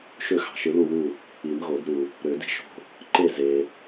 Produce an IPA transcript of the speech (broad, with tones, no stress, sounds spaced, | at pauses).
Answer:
ʃ ø˦˨ x ɑ̤˨ ʃ ɯ˨˩˦ l u˦˨ w u˦˨ | i˨˩˦ m ɣ o˨˩˦ d ɾ u˨ | ɾ ø˨˩˦ d i̤˧˥ ʃ o̤˦˨ | ǃ e˦˨ z e˨